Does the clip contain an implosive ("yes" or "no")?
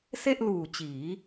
no